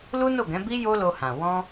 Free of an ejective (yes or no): yes